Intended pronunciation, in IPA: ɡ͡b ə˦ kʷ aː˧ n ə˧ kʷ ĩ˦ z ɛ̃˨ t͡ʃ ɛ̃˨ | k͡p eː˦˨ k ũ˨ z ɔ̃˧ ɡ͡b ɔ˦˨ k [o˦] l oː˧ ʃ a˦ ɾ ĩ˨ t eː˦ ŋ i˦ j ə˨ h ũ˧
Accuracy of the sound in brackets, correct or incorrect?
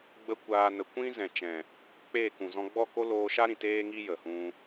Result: correct